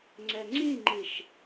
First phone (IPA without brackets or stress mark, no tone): ŋ͡ǀ